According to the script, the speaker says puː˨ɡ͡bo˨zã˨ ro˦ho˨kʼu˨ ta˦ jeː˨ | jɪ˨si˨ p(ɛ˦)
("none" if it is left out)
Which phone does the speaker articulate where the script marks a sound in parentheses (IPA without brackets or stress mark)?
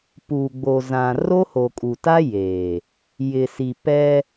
ɛ˦